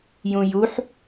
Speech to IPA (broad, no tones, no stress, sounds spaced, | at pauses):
j ũ j u ħ